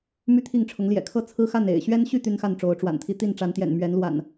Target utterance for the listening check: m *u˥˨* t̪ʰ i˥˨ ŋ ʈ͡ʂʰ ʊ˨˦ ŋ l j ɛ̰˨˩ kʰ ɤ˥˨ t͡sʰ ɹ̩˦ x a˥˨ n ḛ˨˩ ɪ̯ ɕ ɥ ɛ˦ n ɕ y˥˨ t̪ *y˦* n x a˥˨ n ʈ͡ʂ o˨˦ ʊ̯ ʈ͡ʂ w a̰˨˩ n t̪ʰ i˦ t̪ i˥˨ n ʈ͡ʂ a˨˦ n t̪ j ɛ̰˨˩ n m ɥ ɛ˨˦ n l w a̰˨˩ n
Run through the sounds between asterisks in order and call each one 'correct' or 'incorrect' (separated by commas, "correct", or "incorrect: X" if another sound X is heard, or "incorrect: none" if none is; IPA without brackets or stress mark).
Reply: incorrect: y˥˨, correct